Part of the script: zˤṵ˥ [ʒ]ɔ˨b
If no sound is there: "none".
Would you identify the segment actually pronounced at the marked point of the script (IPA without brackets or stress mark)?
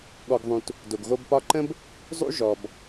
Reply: ʒ